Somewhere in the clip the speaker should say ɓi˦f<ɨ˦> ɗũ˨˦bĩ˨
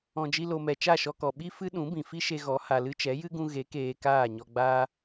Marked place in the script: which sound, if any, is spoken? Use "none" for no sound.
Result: ɨ˦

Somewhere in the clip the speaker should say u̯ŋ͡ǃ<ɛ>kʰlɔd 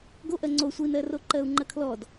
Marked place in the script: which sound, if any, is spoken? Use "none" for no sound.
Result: ɜ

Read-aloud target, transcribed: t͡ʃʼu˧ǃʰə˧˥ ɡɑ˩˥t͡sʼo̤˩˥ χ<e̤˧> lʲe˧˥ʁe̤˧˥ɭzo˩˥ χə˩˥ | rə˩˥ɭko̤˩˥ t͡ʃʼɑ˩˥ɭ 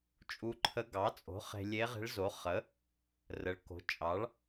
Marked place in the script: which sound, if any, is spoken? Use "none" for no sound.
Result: e̤˧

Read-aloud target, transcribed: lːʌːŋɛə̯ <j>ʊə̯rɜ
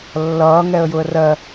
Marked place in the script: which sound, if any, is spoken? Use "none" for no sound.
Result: j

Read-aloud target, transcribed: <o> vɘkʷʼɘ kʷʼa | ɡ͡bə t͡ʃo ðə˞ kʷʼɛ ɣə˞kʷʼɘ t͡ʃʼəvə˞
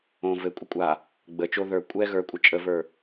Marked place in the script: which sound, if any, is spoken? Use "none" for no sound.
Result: õ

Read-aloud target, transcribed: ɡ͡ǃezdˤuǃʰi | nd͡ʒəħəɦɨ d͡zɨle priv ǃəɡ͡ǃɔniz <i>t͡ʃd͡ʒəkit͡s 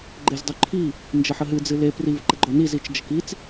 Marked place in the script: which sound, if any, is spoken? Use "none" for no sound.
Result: i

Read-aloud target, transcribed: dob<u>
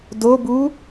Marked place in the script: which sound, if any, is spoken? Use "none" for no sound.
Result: u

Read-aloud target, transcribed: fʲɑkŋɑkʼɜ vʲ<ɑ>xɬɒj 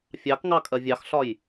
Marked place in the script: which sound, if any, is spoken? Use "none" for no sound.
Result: ɑ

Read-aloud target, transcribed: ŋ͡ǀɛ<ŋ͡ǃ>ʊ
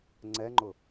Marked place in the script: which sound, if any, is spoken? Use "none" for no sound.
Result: ŋ͡ǃ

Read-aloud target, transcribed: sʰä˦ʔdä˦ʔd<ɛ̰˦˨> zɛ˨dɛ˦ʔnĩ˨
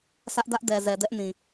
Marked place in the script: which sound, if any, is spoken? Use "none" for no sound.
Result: ɛ˨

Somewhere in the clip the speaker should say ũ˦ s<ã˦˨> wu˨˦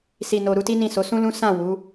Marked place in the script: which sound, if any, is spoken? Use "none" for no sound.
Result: ã˦˨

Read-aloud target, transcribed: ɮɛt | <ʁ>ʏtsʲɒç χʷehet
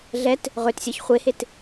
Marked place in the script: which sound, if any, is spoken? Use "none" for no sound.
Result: ʁ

